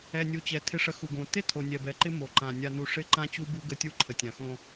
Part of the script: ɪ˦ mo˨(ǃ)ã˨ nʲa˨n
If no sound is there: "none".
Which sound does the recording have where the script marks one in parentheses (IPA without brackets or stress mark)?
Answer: ǃ